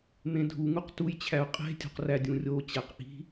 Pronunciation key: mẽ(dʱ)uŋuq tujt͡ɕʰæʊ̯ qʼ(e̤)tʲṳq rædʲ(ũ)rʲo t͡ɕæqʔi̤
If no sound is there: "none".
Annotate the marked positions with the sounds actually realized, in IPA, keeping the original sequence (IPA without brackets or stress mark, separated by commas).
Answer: dʱ, e̤, ũ